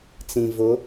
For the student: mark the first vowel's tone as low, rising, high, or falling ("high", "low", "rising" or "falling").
low